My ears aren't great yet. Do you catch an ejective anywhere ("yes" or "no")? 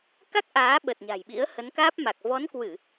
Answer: no